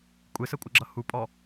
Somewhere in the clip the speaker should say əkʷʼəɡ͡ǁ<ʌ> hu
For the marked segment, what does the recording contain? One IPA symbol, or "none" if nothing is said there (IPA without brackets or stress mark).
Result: ʌ